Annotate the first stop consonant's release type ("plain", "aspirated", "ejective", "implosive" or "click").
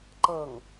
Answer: click